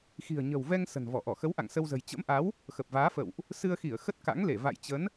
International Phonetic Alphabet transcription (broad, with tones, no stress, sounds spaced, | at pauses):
x i̤˨˩ ə̯ ɲ ə̤˨˩ w v ɛ˧ ŋ s ə̤˨˩ n v ɔ˧˩ ʔ ɔ˧˩ x ə˨˦ w ʔ a̰˧˨ ŋ s ə˧ w z ə̤˨˩ j t͡ɕ ə̰˧˥ m ʔ a˨˦ w | x ə˨˩ p̚ v aː˨˦ f ə̰˧˨ w ʔ | s ɨ˧ ə̯ x i˧˩ ə̯ x ə˦˥ t̚ k a̰˧˥ ŋ l e˧˩ v a̰˧˨ j t͡ɕ ə˨˦ n